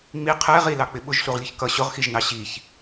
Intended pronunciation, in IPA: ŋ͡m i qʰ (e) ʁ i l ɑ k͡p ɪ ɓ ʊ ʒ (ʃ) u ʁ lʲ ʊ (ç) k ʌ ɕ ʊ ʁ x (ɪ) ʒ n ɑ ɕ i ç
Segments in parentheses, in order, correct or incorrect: incorrect, incorrect, correct, incorrect

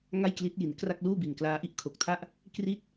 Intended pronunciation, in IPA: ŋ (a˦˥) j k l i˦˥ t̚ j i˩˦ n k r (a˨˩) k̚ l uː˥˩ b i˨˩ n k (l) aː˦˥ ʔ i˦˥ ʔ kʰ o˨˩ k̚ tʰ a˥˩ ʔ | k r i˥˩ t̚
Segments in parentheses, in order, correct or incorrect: incorrect, incorrect, correct

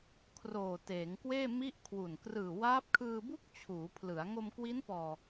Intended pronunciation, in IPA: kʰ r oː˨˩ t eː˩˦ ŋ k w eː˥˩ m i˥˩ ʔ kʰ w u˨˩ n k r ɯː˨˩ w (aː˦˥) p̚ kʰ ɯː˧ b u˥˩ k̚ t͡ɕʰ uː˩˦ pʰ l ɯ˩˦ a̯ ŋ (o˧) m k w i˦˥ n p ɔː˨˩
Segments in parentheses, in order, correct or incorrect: correct, correct

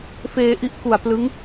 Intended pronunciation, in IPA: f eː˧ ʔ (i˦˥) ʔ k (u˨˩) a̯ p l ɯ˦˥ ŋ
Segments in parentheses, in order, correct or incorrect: correct, correct

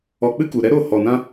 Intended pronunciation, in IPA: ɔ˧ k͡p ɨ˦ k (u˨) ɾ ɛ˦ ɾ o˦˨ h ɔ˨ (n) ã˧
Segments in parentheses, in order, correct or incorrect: correct, correct

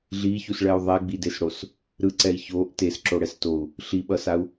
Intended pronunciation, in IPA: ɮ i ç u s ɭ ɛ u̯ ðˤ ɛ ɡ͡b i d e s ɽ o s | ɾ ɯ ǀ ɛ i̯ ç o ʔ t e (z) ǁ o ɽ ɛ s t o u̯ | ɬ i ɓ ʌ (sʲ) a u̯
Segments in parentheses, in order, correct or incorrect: incorrect, incorrect

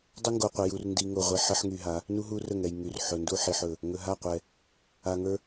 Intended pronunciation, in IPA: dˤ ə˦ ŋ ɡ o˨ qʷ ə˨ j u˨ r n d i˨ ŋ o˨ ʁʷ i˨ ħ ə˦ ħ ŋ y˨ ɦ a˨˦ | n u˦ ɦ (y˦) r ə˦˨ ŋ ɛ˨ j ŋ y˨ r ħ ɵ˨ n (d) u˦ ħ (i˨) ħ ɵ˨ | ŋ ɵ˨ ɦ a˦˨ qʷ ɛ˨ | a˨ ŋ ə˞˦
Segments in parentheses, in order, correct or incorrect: incorrect, correct, correct

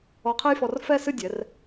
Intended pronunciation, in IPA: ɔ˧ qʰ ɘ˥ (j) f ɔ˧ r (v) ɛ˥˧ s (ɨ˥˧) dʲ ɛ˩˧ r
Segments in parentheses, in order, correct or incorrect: correct, incorrect, correct

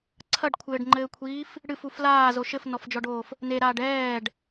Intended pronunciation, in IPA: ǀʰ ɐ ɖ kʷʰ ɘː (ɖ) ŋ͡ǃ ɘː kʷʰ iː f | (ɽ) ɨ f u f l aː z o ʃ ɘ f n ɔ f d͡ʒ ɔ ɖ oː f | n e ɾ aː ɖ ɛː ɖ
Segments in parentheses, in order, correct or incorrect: correct, correct

